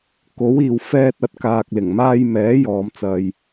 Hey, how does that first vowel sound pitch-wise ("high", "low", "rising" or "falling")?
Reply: rising